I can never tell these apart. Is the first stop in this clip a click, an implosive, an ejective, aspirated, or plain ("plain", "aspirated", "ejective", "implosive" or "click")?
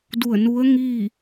plain